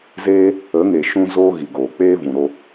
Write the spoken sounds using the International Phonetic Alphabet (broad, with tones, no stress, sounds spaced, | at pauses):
z eː˦ | ə˨˦ ŋ e˨ ʃ ũ˧ z oː˧ ɣ i˨ ɡ oː˨ k͡p eː˦ v ũ˨ ɾ o˦